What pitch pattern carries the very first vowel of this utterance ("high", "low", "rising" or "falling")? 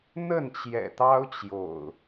falling